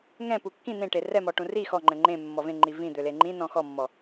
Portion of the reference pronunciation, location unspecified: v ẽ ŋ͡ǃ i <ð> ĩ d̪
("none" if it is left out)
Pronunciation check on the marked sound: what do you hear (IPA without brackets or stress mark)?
v